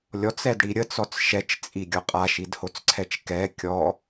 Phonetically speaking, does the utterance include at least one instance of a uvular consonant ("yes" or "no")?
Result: yes